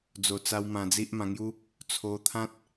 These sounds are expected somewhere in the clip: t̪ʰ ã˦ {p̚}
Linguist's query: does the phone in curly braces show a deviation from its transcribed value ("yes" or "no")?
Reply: yes